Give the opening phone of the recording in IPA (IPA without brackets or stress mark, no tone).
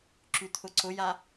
ǁ